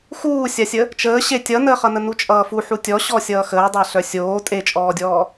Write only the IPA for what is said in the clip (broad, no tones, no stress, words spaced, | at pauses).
xuːsʲasʲə | t͡ʃəː ɕe tʲʌnəːχʌnə nut͡ʃʼʌːfu ħutʲɔ ɕɔsʲʌːxəːdˤa ɬœsʲoː tʼet͡ʃʼɔːdʲɔː